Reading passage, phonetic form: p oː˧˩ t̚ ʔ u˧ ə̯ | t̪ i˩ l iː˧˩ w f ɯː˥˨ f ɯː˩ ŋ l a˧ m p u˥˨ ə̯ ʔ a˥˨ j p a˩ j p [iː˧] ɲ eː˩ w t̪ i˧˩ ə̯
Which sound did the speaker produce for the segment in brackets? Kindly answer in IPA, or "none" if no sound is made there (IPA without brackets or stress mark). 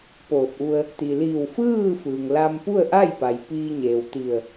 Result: iː˧